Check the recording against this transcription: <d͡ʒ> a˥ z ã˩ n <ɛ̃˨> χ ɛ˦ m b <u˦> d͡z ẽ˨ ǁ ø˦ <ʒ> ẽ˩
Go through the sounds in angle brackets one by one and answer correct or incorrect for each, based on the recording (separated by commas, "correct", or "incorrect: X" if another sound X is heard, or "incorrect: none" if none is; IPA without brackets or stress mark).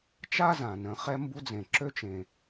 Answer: incorrect: t͡ʃ, incorrect: ə̃˨, correct, incorrect: t͡ʃ